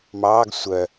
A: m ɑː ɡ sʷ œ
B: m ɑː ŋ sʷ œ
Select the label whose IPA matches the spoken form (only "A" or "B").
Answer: A